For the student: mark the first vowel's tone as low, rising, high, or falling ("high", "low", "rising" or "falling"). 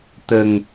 low